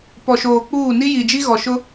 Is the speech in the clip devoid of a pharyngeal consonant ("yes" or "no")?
yes